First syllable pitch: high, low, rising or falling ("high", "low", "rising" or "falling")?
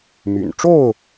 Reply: low